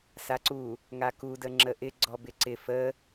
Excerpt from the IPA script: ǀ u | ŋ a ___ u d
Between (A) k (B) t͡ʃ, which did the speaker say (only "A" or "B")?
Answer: A